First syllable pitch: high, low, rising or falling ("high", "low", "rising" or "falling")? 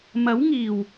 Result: rising